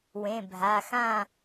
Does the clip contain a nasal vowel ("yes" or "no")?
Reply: yes